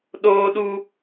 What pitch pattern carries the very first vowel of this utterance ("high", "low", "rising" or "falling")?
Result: high